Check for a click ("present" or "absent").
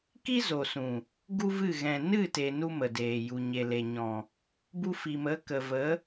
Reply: absent